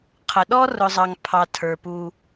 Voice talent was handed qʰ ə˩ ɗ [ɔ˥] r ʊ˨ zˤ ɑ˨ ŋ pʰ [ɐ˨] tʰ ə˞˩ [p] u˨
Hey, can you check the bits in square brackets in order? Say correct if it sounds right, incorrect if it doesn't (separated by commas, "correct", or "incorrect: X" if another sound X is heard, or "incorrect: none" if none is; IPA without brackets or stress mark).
correct, incorrect: ɑ˨, correct